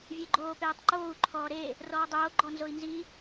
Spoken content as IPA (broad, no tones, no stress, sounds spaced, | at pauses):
vʲ e ɡ͡ǃ oː p eː tˤ ǃ oː u̯ ǃʰ ɔː ɾ e | r ɔː dˤ oː ɡ͡ǃ ɔ n z o i̯ n z i